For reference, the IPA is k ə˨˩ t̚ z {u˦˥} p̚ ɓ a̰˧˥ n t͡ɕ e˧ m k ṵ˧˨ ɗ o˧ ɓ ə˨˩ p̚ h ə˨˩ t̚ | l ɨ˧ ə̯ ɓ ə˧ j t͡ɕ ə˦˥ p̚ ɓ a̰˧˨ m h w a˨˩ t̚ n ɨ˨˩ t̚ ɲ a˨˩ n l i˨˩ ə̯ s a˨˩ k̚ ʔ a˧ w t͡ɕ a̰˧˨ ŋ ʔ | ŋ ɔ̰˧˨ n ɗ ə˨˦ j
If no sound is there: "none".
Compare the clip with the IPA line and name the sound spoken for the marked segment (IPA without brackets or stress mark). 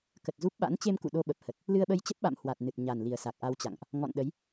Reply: u˦˥